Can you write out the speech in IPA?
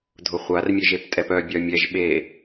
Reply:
dʱʊχʷarmʲeʒep tʼɛpœbʲœ mʲɛʒɓe

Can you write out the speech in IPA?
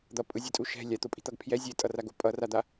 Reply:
d̪ʌpʼɯzʲɛtʼu ʃɛ̤ lʲat̪opʼi̤t̪ʌɡ pʰjɛ zʲɛtʼʌraɡo pʼʌrad̪a

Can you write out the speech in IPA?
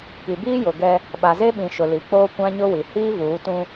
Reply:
ki˨biː˦jʊ˨ ɡɛ˦ | ɓa˨ze˦ɓĩ˨ ʃʊ˨li˨k͡poː˦ kʷã˦ɲʊ˦wi˨ hiː˦vuː˨˦tũ˦

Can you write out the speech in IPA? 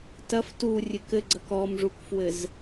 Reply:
tɐf turʲɨk ɘɡ͡ǀɐk ɔmʐukfwɘz

